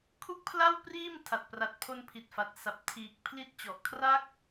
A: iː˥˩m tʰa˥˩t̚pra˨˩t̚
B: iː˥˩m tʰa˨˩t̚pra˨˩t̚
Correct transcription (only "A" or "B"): B